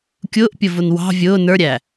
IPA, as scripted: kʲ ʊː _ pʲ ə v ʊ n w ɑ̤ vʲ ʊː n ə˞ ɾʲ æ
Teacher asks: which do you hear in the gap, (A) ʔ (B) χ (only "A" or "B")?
A